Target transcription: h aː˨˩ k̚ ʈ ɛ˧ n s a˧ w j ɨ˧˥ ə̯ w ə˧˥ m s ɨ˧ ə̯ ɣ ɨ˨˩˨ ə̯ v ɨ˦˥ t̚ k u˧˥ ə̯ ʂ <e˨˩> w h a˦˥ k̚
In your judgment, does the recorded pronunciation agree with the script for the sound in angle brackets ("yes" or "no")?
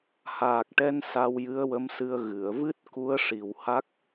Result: no